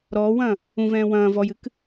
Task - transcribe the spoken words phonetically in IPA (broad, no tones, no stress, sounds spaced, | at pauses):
ɾ ɔː w ɐ̃ː | ũ v ɛ̃ː w ɐ̃ː v ɔ j ɨ k